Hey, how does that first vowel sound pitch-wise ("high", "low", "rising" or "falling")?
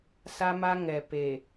high